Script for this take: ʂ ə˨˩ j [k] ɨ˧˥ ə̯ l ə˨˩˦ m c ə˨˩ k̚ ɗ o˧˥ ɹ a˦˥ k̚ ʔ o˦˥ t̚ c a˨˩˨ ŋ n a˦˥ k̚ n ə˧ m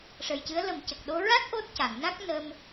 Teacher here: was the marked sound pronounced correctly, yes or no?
no